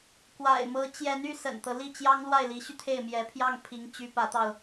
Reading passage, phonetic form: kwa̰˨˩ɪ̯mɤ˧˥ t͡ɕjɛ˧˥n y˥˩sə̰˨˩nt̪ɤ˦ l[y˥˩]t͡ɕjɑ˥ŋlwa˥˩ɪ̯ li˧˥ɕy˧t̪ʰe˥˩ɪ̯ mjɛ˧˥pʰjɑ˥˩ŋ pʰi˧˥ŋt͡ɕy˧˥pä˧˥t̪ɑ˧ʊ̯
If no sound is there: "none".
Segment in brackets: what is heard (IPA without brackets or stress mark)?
i˥˩